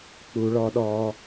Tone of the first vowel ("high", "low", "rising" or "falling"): low